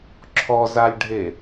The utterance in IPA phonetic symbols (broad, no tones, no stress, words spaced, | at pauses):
ǁʰɔzalʲɖʱe